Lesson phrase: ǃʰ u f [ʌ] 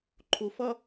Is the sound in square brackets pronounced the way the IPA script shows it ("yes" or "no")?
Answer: yes